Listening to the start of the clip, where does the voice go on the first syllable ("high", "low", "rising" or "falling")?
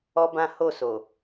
high